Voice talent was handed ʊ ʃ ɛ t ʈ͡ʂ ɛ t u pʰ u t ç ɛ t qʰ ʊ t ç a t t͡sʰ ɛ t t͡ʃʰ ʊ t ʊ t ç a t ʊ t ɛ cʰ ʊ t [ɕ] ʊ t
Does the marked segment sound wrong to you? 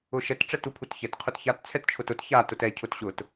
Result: no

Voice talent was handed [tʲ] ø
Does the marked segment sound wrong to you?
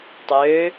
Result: yes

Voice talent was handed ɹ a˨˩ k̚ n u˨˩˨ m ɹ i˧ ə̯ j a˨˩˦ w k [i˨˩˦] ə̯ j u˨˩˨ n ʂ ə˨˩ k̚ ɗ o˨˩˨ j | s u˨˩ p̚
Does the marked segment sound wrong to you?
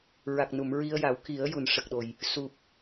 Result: no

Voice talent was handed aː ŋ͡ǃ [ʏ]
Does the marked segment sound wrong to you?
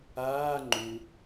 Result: yes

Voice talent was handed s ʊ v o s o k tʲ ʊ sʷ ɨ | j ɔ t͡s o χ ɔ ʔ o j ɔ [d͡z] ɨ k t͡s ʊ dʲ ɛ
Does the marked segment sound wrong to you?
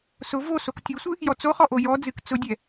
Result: no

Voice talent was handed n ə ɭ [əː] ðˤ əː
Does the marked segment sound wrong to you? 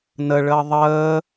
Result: no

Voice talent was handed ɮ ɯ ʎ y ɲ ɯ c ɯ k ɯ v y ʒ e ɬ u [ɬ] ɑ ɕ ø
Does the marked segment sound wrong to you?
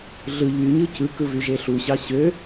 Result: yes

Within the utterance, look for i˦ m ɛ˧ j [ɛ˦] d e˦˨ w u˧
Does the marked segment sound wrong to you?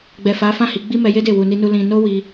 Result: yes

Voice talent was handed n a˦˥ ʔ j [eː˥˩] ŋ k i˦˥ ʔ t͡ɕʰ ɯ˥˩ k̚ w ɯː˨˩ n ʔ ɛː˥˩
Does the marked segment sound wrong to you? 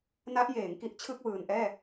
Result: yes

